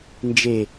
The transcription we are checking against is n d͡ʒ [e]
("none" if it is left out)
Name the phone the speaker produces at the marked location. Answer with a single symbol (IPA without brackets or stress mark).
e